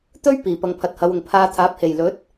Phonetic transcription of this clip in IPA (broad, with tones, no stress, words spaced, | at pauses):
t̪ɵ˥ɥ piː˨˩pɐ˨ŋ pʰɐ˨t̚hɐ˨˧wʊ˨˩ŋ pʰaː˧t̪ʰaː˨˥p̚he˨˩j lɵ˨˥t̚